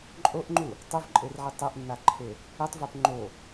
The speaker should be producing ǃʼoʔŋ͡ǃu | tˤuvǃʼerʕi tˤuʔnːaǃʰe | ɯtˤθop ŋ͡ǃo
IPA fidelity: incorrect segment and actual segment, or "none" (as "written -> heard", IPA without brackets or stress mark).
θ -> v